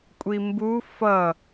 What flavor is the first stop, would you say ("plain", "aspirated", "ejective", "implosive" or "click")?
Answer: ejective